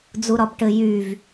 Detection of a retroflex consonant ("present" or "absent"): present